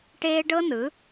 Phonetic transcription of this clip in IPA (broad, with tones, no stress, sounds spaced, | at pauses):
ʈ eː˦ ɖ ɤ˦ n ɯ˨˦